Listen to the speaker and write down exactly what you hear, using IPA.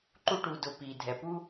ǃ u˥ ʈ u˨ d ʊ˨ p iː˩ dʱ ɛ˩ p u˥

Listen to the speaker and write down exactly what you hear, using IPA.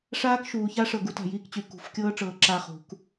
ʂ aː˦ k ʃ uː˨ ç a˦ ʂ ɤ˨ ɡ u˦ t a̤˨ j iː˦ k t͡ɕ y˨ k ṳ˨˦ f kʲ ɤː˦ ʈ͡ʂ ɤː˨ ǁ a˦ χ ṳ˨˦ k

